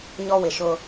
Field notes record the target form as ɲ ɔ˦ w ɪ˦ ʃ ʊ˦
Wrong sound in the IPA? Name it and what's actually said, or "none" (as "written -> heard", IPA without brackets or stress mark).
ɪ˦ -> ɪ˨